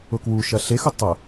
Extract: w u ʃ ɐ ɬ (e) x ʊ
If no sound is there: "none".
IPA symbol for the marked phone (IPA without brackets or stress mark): e